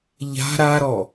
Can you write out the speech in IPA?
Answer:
ʎ a̤ ɾ a ɾ ɔ

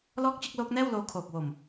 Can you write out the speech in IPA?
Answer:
l ɔː˥˩ k̚ t͡ɕ ɯ˥˩ k̚ l oː˦˥ k̚ n ɛː˥˩ w l oː˧ kʰ oː˨˩ k̚ w o˨˩ m

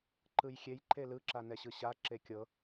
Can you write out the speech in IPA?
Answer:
ǃ ɯ j xʲ e j ǃ e l ɯ ǁ a n ɛ ɕ ɯ ɕ a ǁ e kʲ ɤ

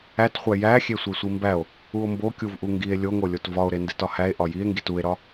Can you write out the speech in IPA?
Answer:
æ t χʷ æ j æ xʲ e sʷ e sʷ i m b æ o̯ | u o̯ m b o kʲ u v ʔ u ŋ ɡ i e̯ lʲ o ŋ o lʲ o t v ɒ o̯ ɾ e n d e t ɒ h æ e̯ ʔ ɒ j i e̯ ŋ ɡ i t u e̯ ɾ ɒ

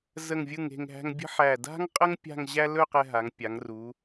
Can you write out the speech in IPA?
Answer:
z ə˧˩ ŋ vʲ ɯ˧˩ ŋ e̤˧˩ ŋ ɦ æ̤˧ ŋ bʲ ə̤˥ ħ æ˧˩ d a̤˥ ŋ qʼ ə˥ ŋ pʲ a̤˥˧ ŋ ʑ æ˥ l ɵ˥˧ q ɛ˧ ɦ a˩˧ ŋ pʲ a˩˧ ŋ r u˩˧

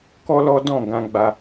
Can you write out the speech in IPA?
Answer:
k ɔ˦ l ɔ˦ d ɔ̃˦˨ ɡ ã˧ ɡ͡b a˧

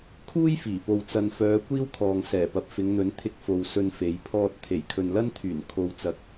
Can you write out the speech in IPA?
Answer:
kʰ uː˥ j f iː˨˩ p o˨ w t͡s ɐ˨ n f œː˨˧ kʷ iː˥ w kʰ ɔː˨ ŋ s ɛː˨˩ p ɐ˨ p̚ f ɪ˨˧ ŋ n̪ ɵ˨˥ n t̪ʰ ɪ˧ k̚ f o˨ w s ɵ˧ n f e˨˧ j pʰ ɔː˧ t̚ t̪ʰ e˨˩ j kʰ ɵ˨ n l ɐ˥ n t̪ʰ yː˨˩ n kʰ o˨ w t͡s ɐ˨˥ k̚

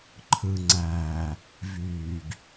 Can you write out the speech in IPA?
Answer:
ǃʰ ɯ ŋ͡ǀ æː | v yː ɡ

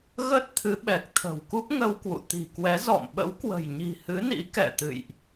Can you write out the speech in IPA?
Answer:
ɣ ə˦˥ t̚ t̪ʰ ɨ˨˦ ɓ ɛ˨˩ k̚ t̪ʰ ə̤˨˩ w k u˦˥ p̚ ŋ ə˧ w k w ṵ˧˨ t̪ i̤˨˩ k w ɛ˨˦ z ɔ̰˧˨ m ɓ ə̰˧˥ w k w ə̤˨˩ j ɲ i̤˨˩ h ɨ˨˦ n ḭ˧˥ k ɛ̰˧˨ t̪ ɨ̰˧˨ j ʔ

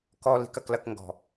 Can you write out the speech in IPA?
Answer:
k ɔ˦ l i̤˦ k ɐ˦ k l ɐ˦ k ŋ ɡ ɔ̤˨

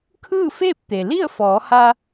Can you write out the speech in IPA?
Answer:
kʰ ɯː˥˨ f eː˥˨ p̚ t̪ e˩ l i˥˨ ə̯ f ɔː˩˧ h a˧

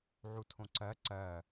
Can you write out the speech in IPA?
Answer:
ʕ u tʰ õ ǀ ɜ ǀ ɜ

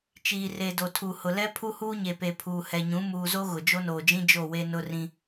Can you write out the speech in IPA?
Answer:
t͡ʃ iː˨ r e˨ d o˨ tʰ u˨ h ʊ˨ l ɛ˦ pʰ u˦ h uː˦ ɲ e˨ p e˨ pʰ uː˨ h ɛ˨ ɲ ũ˨˦ m uː˨ z o˦ ɣ ʊ˨ d͡ʒ o˦ n oː˨ d͡ʒ ĩ˦ d͡ʒ o˦˨ w e˦ n ʊ˦ r ĩ˦

